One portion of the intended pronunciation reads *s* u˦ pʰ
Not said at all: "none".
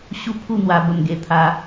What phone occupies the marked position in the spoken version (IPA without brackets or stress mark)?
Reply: ɕ